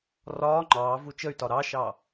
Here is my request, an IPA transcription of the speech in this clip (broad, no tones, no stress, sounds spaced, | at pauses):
r ɒː ŋ͡ǃ ɑː v u t͡ʃ ə y̯ t ɒ ɾ ɑ ʃ ɑ